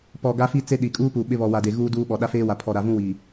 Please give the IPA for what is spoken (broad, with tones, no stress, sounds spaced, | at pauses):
p ɔ˨ ɡ a˦ f i˦ t͡s e˦ ɗ i˨ kʼ uː˦ p u˨ ɓ ɪ˦ β ɔ˨ w a˨ d e˨ ɣ uː˦ d uː˦ ɓ ɔ˨ ɗ a˦ f eː˦ w a˨ pʰ ɔ˨ ɾ a˨ v ũ˦ w iː˨